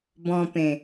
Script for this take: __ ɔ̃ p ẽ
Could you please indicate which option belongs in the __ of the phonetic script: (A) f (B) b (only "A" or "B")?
B